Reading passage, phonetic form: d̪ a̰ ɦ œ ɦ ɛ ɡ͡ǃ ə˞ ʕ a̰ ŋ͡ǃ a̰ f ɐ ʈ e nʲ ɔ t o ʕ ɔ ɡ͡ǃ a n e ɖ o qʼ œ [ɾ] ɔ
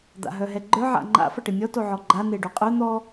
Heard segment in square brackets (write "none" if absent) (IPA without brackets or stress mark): n̪